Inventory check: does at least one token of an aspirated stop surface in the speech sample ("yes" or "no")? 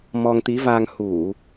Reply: no